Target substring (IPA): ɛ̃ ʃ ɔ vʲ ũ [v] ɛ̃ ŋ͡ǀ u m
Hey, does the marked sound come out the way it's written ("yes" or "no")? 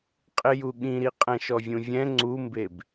no